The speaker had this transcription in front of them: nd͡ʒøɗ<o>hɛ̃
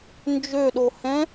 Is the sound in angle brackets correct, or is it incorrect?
correct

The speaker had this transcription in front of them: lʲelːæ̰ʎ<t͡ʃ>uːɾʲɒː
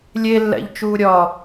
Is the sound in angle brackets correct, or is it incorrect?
correct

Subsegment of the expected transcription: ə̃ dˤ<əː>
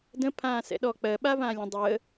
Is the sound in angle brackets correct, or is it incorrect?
correct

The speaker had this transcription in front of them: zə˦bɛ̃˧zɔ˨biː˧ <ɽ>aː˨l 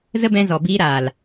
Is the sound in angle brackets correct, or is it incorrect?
incorrect: ɾ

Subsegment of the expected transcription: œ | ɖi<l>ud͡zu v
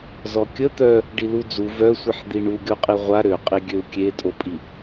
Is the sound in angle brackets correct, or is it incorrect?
correct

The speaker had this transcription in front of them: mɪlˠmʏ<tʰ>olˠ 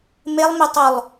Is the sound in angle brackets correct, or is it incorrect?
incorrect: tˤ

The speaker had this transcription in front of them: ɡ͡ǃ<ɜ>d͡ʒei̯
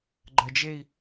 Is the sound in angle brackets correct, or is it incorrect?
correct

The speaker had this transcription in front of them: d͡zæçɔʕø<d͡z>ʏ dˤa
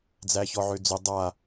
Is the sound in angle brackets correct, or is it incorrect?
correct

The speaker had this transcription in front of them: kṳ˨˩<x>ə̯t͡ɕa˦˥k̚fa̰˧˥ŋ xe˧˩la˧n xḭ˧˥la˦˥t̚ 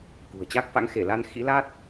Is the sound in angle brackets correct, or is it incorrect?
incorrect: none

